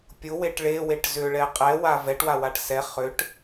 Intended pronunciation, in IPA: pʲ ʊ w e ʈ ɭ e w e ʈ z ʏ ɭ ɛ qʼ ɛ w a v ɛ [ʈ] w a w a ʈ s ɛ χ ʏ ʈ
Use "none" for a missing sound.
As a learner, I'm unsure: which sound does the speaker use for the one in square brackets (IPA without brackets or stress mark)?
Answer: ʈ